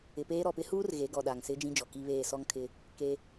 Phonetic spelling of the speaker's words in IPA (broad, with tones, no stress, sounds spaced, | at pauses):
ɪ˨ p eː˦ ɾ ɔ˨ p ɪ˦ h uː˦ r ɣ e˨˦ ɡ ɔ˨ ɗ a˨ ŋ s ɪ˦ d͡ʒ ĩ˦ d͡ʒ ɔ˨ k i˦ β eː˦˨ s ɔ˦ ŋ kʰ ɪ˦ | k e˦